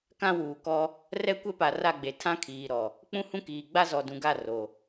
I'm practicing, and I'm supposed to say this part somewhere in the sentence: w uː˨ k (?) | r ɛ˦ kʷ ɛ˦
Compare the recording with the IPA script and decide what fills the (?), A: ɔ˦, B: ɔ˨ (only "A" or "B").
A